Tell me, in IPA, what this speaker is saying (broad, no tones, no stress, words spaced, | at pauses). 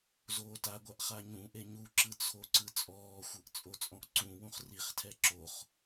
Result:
zoːtaɡʷaʔ χaɲũʔe ɲuǁɯ t͡sʰoǀɯt͡sʼɔːxʷɤʔ t͡sʼot͡sʼɔ̃ʔǀũwũχ riχtʰɛ ǁoχ